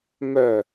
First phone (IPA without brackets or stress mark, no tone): m